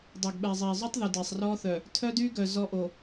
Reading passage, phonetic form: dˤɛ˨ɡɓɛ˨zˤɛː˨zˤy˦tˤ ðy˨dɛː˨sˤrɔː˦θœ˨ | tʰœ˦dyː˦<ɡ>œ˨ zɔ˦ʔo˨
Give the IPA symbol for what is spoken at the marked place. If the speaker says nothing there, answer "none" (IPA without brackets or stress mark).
ɡ